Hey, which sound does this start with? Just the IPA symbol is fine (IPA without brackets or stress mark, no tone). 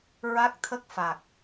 ɹ